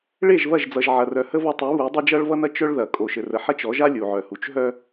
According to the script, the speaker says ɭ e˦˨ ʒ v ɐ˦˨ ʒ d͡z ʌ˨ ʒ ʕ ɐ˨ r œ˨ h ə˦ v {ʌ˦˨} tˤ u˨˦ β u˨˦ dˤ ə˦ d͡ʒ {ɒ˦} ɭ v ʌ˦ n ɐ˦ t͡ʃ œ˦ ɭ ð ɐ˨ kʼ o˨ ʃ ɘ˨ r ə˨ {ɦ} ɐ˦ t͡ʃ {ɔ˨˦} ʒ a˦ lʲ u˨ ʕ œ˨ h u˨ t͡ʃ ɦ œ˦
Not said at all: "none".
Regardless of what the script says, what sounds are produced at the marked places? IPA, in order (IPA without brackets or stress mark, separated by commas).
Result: ʌ˦˨, ʌ˦, ħ, ɔ˨˦